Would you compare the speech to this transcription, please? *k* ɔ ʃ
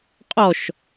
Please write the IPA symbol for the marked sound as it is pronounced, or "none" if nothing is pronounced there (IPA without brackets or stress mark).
qʼ